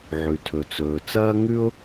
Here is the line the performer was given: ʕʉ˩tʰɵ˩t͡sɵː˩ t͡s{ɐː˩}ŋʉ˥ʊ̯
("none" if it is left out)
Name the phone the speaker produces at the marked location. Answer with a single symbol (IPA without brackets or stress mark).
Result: ɐː˥